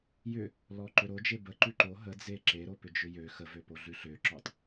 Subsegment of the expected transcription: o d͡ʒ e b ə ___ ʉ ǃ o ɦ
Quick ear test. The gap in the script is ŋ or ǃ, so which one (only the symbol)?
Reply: ǃ